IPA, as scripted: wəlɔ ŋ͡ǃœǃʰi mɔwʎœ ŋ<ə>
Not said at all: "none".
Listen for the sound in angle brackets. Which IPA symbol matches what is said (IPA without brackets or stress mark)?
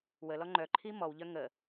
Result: ə